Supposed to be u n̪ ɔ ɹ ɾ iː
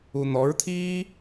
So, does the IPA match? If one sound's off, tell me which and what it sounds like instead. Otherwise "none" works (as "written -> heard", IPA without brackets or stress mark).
ɾ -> t̪ʰ